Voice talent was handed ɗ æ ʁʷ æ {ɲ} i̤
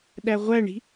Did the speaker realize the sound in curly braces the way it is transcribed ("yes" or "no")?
no